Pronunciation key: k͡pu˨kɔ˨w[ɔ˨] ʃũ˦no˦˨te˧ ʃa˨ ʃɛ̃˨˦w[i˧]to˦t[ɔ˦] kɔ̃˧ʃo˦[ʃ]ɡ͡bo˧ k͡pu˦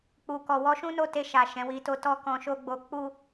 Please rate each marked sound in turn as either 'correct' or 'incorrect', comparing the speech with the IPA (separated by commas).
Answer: incorrect, correct, correct, incorrect